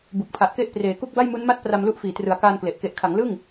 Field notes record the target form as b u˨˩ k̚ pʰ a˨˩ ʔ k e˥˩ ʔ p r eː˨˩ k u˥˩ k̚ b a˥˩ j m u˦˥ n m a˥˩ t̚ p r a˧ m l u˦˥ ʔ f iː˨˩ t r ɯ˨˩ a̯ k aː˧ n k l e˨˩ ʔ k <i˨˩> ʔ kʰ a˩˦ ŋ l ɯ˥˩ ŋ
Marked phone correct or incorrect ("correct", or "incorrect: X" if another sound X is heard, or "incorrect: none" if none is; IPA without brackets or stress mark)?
incorrect: e˨˩